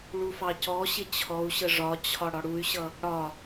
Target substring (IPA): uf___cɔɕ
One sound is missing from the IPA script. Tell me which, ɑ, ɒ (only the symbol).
ɑ